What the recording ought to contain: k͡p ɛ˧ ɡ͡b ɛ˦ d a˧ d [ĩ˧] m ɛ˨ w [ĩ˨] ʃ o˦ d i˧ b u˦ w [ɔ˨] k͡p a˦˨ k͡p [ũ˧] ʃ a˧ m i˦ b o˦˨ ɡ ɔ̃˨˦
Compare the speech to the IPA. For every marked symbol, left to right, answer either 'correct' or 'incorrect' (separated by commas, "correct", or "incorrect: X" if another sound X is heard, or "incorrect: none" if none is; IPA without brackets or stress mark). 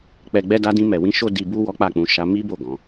correct, incorrect: ĩ˨˦, incorrect: ɔ˦, correct